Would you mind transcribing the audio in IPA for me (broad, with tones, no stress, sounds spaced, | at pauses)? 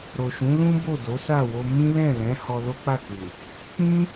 ɾ o˨ ʃ ũ˨˦ l ũ˦ b o˦˨ d o˨˦ s a˦˨ w o˧ m ĩ˦ l ɛ̃˦˨ l ɛ̃˨˦ h ɔ˧ l o˦ k͡p a˦˨ k u˨ | k͡p ĩ˦